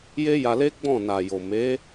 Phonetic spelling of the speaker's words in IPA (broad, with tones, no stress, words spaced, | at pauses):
je˦ja˧le˦ ɡ͡bɔ̃˦˨na˨jo˨ me˨˦